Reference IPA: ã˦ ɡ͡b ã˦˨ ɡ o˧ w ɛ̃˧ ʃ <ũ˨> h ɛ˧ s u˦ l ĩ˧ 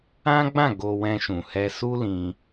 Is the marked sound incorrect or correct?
correct